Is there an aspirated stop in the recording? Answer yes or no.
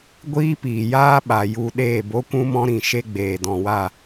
no